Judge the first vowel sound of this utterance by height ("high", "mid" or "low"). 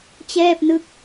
mid